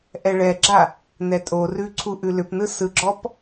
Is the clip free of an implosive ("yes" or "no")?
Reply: yes